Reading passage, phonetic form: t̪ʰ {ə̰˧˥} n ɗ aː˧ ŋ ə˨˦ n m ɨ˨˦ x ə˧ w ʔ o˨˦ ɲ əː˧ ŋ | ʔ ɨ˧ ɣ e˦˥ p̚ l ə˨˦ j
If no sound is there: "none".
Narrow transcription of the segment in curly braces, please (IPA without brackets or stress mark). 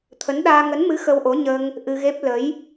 ə˨˦